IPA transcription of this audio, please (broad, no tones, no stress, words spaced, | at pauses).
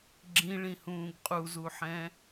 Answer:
ɡ͡ǁĩɭĩhũːɡ qʼuzuħɛ̃